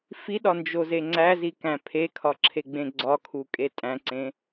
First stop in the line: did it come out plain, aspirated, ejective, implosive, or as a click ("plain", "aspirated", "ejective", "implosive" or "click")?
implosive